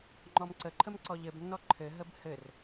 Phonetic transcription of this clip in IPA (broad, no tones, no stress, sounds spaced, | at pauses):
ŋ͡ǃ ɔ m ǀ ə ǃʰ ə m ǀ ɔ ʎ ɘ b nː ɔ ǃʰ ɘ ɦ ə b h ɘ r